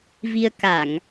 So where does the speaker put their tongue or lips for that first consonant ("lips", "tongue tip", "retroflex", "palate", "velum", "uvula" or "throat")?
lips